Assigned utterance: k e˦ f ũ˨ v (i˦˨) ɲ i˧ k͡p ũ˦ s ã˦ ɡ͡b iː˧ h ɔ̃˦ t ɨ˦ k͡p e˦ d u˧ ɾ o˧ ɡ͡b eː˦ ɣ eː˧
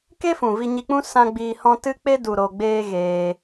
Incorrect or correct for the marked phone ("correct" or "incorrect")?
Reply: incorrect